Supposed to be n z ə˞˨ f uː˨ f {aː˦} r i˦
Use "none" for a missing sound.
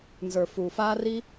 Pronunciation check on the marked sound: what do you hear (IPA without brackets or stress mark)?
aː˦